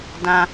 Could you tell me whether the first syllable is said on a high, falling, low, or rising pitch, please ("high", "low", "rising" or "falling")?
high